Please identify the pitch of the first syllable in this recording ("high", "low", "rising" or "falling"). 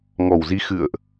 low